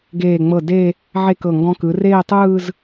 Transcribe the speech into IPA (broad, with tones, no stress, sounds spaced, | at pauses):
ɡ eː˧˩ ŋ͡m ɤ˧˩ d e˥˧ | ʕ e˥˧ k ɤ˧˩ ŋ ɡ ɔ̃˧ k ɯ˩˧ r eː˥˧ tˤ ɯː˥˧ z